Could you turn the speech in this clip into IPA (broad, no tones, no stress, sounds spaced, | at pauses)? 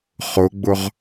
χ ʊ ɡ͡b ʊ ʁ